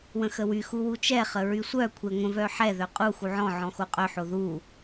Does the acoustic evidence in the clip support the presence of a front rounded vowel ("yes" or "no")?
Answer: yes